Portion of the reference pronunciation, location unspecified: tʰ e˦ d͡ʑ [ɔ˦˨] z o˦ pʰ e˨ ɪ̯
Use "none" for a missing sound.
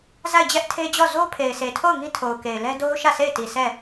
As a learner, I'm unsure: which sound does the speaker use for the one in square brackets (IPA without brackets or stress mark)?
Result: ɔ˦˨